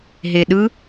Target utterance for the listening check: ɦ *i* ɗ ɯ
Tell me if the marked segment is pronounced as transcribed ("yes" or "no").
no